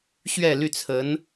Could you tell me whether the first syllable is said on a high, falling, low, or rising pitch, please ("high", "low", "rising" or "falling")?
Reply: falling